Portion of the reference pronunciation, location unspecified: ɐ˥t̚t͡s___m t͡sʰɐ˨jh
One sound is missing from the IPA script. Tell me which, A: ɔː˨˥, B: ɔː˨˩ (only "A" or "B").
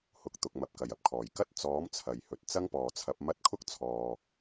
A